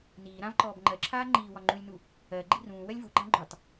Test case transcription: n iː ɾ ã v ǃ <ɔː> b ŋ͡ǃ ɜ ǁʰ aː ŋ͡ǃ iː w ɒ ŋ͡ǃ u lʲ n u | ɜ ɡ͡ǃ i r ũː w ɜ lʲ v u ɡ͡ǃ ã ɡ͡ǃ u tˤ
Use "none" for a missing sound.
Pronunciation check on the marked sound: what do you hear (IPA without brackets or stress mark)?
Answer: ɔː